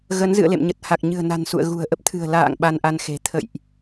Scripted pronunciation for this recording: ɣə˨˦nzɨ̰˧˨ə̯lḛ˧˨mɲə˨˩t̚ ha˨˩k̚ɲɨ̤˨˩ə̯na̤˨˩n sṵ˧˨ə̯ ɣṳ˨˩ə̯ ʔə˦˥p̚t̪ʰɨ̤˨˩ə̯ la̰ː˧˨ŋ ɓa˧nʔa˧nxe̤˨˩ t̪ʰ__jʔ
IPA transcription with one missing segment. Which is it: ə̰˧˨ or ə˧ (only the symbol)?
ə̰˧˨